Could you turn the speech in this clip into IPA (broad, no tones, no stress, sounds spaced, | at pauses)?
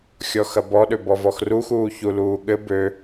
xʲ ɔ x ɐ b ɔ ɗ ø b ɔ v ɔ x r u x uː ç u l uː ɠ ɘ b ø